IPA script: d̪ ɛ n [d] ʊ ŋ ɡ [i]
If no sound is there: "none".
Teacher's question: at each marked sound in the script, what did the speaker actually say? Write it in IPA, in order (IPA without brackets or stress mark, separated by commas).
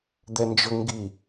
d͡ʒ, i